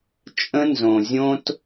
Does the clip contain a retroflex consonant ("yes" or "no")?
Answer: no